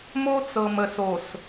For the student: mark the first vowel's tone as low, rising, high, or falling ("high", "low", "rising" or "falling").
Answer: high